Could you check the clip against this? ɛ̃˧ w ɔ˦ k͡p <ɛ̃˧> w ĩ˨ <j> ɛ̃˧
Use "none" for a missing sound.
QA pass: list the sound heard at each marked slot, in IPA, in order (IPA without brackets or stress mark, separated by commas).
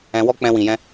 ɛ̃˧, j